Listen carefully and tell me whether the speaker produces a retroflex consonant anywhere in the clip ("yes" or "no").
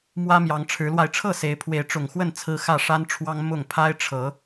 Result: yes